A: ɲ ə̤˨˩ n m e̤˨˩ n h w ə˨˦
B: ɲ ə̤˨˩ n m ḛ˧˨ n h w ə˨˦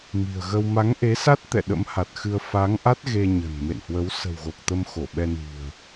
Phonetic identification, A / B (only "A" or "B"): B